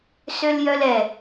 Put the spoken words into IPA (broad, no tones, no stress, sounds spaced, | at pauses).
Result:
s ø l j œ l ɛ